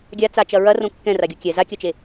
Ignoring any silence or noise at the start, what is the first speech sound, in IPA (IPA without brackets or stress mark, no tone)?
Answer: ɡʲ